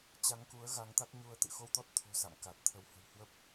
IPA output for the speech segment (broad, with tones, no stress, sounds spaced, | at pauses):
t͡ɕ a˨˦ ŋ k u˨˦ ə̯ ɣ a˨˦ ŋ t̪ a˦˥ k̚ ɲ u˧ ə̯ t̪ ɨ̰˧˨ x o˧ w t̪ ɔ˦˥ t̚ t̪ʰ o̤˨˩ s a̰˧˨ m k a˨˩ t̚ t̪ʰ ə˨˦ w h ə̤˨˩ w h w ə˦˥ p̚